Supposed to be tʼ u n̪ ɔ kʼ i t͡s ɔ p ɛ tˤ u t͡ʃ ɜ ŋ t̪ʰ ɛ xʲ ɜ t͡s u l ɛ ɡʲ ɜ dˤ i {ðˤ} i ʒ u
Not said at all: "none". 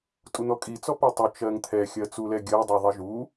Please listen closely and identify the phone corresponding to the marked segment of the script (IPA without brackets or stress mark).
ðˤ